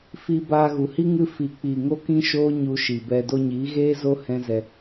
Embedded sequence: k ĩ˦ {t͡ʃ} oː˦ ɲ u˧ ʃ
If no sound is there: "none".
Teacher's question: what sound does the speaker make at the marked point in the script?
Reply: ʃ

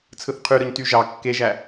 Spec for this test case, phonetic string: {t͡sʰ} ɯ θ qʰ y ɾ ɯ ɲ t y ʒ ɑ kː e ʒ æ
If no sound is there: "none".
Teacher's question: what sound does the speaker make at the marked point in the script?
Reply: t͡sʰ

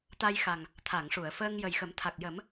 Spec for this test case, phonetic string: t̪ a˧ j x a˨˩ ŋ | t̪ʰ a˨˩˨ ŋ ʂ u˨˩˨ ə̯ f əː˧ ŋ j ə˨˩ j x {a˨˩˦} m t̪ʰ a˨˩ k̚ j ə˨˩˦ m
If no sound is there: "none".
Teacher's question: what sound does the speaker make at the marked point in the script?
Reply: ə˨˩˦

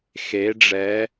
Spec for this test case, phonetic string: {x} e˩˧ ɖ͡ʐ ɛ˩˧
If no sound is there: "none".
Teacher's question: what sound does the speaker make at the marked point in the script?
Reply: x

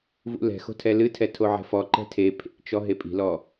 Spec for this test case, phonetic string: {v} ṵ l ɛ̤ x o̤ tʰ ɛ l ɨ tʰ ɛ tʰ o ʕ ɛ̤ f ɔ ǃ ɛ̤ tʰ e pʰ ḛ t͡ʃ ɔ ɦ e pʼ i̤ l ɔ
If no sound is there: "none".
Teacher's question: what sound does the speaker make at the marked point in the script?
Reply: v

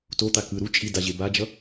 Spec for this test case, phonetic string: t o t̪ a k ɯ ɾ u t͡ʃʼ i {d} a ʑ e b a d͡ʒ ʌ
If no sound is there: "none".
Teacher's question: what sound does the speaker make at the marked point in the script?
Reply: d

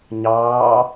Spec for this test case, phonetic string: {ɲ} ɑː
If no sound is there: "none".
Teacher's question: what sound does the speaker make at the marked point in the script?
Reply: ɲ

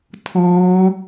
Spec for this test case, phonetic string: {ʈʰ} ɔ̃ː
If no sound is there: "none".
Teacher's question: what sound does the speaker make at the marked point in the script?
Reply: tʰ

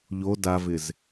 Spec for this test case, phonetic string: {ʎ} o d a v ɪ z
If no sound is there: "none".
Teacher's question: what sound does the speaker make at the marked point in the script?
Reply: ʎ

